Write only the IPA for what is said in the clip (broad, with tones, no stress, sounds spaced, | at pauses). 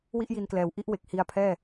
w i˥˩ ʔ j i˧ n k l ɛː˨˩ w ʔ i˥˩ ʔ w e˨˩ k̚ h i˧ a̯ pʰ ɛː˥˩